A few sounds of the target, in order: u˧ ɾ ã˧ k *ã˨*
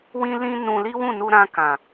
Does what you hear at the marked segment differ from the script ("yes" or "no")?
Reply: no